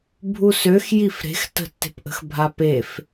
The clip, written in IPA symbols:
bʱusøx jifɾe̤x tə̤tːe̤pʔə̤x bʱapef

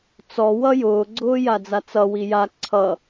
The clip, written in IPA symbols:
t͡sɔ wʌjʊː ɡ͡ǀʊːjad͡zat͡sʌ wija ǀʰʌ

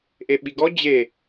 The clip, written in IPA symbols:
ʔeɓiɡɔ d͡ʑe

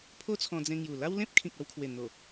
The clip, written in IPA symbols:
pʰo˦t͡sʰɔ̃˧d͡zẽ˧ŋju˨˩ la˦wlẽ˦p̚ kʰĩ˨k̚a˥˧wkʰwe˨˩n̪o˨˩

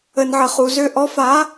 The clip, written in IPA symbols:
ə˨nʕə˨χu˨zø˧ ʔɔ˨˦fa˨˦

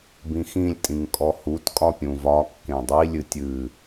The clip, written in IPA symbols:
bĩxĩlʲtʼĩŋ kʼɔhutkʼɒ pʲũvɒkːẽ dˤilʲɨ tʲɨ

